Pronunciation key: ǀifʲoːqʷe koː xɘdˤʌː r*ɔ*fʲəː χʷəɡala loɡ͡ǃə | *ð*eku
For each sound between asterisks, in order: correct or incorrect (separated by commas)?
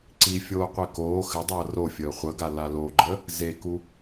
incorrect, incorrect